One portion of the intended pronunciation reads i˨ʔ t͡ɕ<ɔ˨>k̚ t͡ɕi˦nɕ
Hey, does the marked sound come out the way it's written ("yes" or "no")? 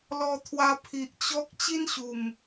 no